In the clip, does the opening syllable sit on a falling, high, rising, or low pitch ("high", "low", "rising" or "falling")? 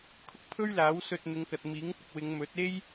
high